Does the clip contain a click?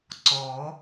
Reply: yes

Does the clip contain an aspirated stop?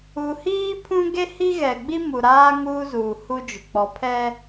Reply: yes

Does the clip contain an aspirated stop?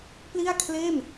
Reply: yes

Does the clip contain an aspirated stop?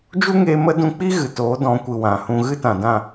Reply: no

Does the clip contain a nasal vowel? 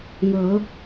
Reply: no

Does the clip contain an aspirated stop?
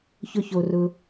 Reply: no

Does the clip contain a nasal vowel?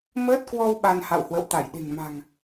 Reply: no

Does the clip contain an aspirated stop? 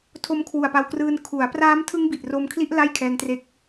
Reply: yes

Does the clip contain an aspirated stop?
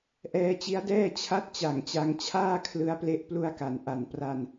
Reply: yes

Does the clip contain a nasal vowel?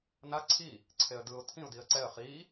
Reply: yes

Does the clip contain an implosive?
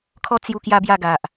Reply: no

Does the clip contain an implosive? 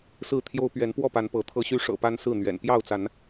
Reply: no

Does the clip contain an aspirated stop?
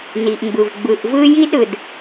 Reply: no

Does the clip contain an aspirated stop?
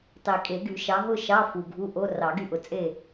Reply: no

